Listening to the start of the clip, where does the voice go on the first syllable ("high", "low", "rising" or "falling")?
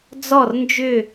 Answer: falling